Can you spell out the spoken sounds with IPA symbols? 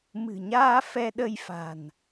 m ɨ̤˨˩ ɲ aː˧ f ɛ˧ ɗ ə˧ j f a̤˨˩ n

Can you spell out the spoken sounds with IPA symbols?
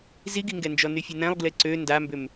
z i ɡ i ŋ ɡ ɛ n d͡ʒ ɔ n y fʲ e n ɛ̃ lˠ ɡ l e ǀ ø n d a m b ʏ m

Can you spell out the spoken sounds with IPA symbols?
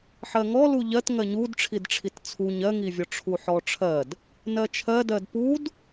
ħ ɜ ŋ ɔ l u ʎ ɜ t ŋ ɜ ɲ u d ʈ͡ʂʰ i d ʈ͡ʂʰ i t t͡sʰ u ɲ ɜ ŋ i vʲ ɔ ʈ͡ʂʰ u ħ ɔ ʈ͡ʂʰ ɜ d | n ɜ t͡ʃʰ ɜ d ɜ d p u d

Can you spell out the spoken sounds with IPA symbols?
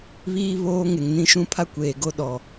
β iː˦ β oː˦ ŋ e˨ ŋ n ĩ˦ ʃ ũ˦ pʰ a˦ kʷ eː˨ ɡ o˦ ɗ ɔ˨

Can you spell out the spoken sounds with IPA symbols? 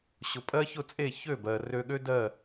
ɕ ʊ˩ pʼ ɜ˥ ç ʊ˥˩ t͡sʼ e˥˩ ç ø˥˩ b ɜ˩ r ø˧ ɠ ø˥ d ɜ˥˩

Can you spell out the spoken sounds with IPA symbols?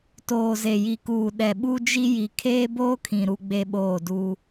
t oː˨ z e˨ j i˨ k uː˨ ɗ ɛ˨ ɓ u˦ d͡ʒ i˦ j i˨ kʰ eː˦ b oː˦ kʰ ĩ˨ ɾ u˦ ɡ͡b e˦ ɓ oː˦˨ d uː˦

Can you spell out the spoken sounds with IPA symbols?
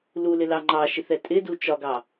l u l ɪ l ɑ ŋ͡ǃ ɑ ʃ i θ ɛ tʼ ɪ d u t͡ʃ ɒ ɡ ɑ

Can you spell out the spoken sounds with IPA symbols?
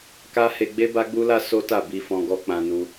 k a˦ h e˧ ɡ͡b e˦ b a˦ ɡ͡b u˦ l a˦ s o˦ t a˦˨ b i˧ f ɔ̃˧ ɡ ɔ˧ k͡p ã˧ n u˧

